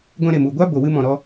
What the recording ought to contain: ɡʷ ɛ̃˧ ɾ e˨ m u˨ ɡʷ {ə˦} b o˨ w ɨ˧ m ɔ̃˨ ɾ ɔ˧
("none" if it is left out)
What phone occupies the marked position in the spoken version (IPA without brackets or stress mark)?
a˦